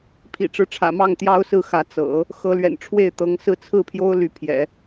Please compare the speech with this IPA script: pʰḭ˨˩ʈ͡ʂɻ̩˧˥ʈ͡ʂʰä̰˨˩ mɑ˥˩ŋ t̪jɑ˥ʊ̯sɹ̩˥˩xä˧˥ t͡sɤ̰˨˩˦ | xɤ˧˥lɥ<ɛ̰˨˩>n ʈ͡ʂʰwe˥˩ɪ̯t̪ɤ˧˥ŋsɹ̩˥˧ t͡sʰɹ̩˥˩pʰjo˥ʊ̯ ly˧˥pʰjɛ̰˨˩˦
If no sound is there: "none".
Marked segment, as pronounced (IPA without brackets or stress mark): ɛ̰˨˩